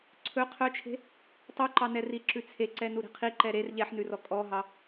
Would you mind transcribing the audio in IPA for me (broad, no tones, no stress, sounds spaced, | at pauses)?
ǀʰ ɵ qʰ œ t͡ʃʰ e̤ | tˤ ʉ ǃ ɑ n ɛ r i ǁ ʉ t͡sʰ e ǀ ɛ n u ɾ e̤ qʰ i ǃ ɛ ɾ e r ʎ ɛ ħ n ʉ r ɔ kʼ ɔ ɦ ɑ